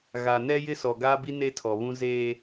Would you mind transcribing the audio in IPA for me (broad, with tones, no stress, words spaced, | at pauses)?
ɣa˨nɛ˦jɪ˦sɔ˨ ɡa˦bi˦ ne˦tʰɔ˨βũ˦ zeː˦